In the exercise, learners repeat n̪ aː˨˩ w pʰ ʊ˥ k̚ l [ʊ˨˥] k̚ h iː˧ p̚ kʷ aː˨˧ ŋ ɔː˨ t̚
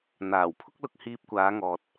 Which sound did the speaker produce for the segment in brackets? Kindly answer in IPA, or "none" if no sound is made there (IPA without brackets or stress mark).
ʊ˧